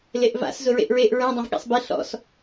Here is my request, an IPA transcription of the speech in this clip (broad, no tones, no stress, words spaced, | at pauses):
leʔva̰s zʊɹḛʔɹeʔ ɹɛ̃ dˤẽvɠɛ̰sˤbe ɬɔ̰s